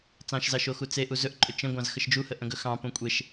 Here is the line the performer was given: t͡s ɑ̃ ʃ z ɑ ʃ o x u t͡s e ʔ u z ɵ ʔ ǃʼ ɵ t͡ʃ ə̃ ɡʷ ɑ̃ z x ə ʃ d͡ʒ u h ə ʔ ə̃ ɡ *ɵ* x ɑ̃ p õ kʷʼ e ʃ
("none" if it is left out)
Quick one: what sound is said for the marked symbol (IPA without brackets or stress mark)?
ɵ